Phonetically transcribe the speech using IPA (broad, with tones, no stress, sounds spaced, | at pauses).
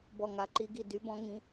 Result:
b ɔ˧˩ ŋ a˨˦ ǃ i˨˦ ɡ i˧˩ d y˨˦ b ɔ̃˨˦ ŋ ĩ˨˦